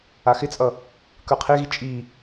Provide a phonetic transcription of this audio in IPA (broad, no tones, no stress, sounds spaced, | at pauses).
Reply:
a x ɪ t͡sʼ ʌ | k ə˞ qʰ e ɣ i t͡ʃʼ i